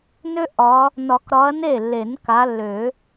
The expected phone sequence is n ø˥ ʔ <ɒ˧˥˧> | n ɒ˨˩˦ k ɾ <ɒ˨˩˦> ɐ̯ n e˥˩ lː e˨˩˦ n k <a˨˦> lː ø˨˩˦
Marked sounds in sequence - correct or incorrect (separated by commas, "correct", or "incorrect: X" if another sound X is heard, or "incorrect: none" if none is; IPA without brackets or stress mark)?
incorrect: ɒ˨˦, incorrect: ɒ˨˦, correct